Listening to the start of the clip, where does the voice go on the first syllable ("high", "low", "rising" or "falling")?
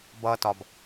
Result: low